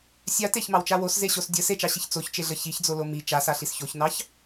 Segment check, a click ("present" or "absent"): absent